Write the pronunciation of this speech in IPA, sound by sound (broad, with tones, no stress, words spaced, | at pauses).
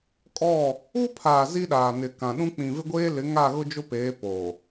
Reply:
kʼɔ˦˨ | u˦pʰaː˨ zi˦ɗaː˨ nɪ˨ kã˨ɗũ˦ k͡pĩ˨vɪ˦ɡʷeː˦ lɪ˨˦ŋa˦˨ɣʊ˦ d͡ʒʊ˦peː˨˦ po˨